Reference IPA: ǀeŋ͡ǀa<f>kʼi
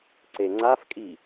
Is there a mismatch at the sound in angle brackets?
no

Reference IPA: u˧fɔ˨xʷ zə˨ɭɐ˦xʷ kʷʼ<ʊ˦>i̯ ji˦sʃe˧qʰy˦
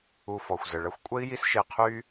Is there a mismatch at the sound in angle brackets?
yes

